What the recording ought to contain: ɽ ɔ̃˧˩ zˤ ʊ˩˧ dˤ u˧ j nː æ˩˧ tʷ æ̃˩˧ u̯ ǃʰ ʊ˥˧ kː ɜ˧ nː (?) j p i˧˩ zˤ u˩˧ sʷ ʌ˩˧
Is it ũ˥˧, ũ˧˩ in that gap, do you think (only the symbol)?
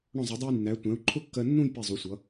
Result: ũ˥˧